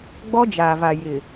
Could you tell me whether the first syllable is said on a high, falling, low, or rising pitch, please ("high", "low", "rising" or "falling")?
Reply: high